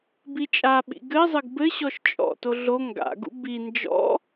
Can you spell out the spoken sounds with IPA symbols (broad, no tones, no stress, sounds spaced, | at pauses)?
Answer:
b i t͡ʃʼ a ɓ ḭ ɡ ɘ zˤ ɘ ɡ b ɘ ɕ ɔ ʃ t͡ʃʼ ɔ̰ t o ɮ o ŋ ɡ a̰ ɡ ṵ b i n d͡ʒ ɔ̰